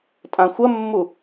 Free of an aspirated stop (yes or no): yes